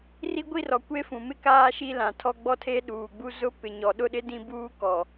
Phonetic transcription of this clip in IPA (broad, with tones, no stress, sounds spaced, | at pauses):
r i˦ ɡʷ i˦ r ɔ˨ kʷ e˦ f ũ˨ m ɪ˦ k aː˦ ʃ i˦ l ã˨ tʰ ɔ˦ ɡ͡b ɔ˦ tʰ e˦ ɗ uː˨ ɡ͡b u˦ z ʊ˦ p ɪ˨ ɲ ɔ˨ ɗ ʊ˦ ɗ ɪ˦ d ĩ˦ b uː˦ k ɔ˨